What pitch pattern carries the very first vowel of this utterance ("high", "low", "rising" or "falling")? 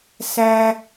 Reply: high